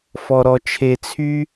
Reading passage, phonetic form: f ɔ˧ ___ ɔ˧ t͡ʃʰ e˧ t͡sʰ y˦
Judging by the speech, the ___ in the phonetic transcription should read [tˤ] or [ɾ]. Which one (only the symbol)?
ɾ